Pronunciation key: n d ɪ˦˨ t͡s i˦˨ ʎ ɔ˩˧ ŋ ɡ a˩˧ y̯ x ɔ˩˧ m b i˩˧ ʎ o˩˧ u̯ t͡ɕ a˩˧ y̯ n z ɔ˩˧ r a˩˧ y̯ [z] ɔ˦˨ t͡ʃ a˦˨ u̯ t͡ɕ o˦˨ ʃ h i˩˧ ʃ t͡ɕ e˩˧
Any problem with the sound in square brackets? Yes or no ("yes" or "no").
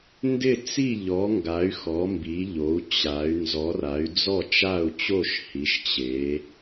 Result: yes